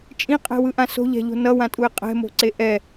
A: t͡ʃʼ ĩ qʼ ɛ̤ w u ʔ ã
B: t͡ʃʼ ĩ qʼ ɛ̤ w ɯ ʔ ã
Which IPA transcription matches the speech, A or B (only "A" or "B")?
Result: B